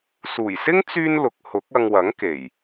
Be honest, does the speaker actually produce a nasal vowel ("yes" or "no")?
no